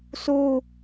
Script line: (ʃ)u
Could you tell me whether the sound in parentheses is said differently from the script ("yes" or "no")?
yes